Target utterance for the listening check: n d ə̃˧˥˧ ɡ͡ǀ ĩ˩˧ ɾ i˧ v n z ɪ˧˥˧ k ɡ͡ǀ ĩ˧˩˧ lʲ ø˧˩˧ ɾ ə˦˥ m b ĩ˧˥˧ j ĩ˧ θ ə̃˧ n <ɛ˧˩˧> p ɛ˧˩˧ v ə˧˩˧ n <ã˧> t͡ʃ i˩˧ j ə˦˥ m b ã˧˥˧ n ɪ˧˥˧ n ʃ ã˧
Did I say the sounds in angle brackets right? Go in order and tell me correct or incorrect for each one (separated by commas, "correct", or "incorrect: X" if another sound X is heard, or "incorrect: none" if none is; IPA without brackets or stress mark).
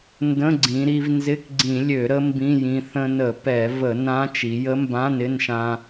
incorrect: ə˧˩˧, incorrect: ã˦˥